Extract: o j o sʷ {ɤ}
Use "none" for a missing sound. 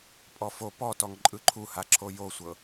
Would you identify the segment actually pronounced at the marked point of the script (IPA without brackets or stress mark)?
ɤ